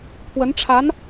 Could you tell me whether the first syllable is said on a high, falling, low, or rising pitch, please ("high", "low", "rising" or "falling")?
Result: rising